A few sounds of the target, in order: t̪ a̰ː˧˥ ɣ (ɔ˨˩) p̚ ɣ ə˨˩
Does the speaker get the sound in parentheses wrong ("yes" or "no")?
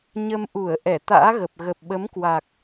yes